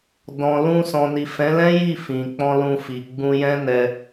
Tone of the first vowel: low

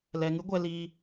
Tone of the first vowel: low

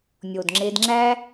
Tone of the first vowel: low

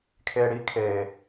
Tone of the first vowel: low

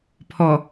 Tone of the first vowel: low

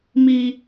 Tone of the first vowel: high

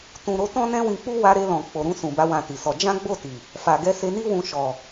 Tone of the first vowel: low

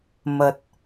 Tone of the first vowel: low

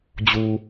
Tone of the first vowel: low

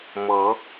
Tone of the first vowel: rising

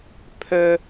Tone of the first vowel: high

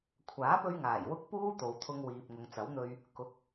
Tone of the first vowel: rising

